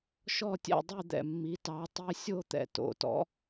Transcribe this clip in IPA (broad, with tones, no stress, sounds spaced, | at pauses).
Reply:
ʃ ɔ˥˨ tʲ ɛ̰˥˨ dˤ y˥˨ d̪ ɛ̰˩ mː i˩˥ t ɑ˩˥ tˤ i˧˥˧ sʲ o˥˨ t̪ ɛ̰˩ t o̰˩˥ t ɔ̰˩˥